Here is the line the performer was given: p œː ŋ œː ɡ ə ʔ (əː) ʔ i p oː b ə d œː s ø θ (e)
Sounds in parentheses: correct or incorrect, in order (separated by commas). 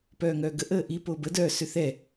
correct, incorrect